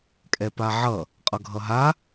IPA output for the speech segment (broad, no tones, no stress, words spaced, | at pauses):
kʼɛpaʕʌ | qʼʌɡʱʌɦa